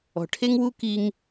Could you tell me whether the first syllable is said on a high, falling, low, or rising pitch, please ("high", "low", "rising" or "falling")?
low